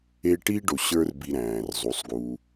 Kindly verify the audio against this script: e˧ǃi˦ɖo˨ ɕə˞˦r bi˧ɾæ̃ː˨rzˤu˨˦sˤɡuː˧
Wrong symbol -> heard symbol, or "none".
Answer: ǃ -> ʈ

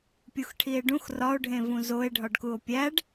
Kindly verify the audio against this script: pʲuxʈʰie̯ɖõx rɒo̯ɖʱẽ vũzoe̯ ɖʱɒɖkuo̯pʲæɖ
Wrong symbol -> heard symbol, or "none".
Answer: õ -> ũ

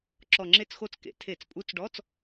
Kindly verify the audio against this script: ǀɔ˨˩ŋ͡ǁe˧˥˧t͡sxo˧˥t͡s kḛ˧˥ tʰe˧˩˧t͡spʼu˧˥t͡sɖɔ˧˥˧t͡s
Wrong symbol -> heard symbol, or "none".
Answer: ǀ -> ǁ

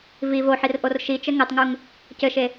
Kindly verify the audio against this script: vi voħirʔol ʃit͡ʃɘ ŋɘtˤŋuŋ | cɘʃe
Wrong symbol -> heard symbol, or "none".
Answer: l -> r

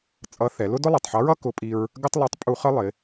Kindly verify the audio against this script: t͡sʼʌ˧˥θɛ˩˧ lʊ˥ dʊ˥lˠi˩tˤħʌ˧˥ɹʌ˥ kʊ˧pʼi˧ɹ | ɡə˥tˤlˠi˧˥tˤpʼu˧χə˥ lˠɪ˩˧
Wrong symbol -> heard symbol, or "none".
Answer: none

